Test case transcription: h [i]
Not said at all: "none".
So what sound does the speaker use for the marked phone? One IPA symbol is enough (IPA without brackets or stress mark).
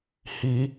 i